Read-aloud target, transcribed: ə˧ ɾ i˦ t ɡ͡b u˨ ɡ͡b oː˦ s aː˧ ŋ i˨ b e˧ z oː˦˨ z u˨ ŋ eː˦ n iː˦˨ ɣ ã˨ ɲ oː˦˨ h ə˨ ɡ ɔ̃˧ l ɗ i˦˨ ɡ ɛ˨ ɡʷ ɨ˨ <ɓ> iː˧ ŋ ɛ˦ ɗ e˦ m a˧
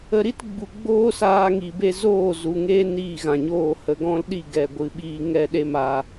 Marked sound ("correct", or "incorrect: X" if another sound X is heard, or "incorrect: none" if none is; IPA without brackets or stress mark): correct